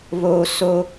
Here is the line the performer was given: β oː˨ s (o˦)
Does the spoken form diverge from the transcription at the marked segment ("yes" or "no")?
no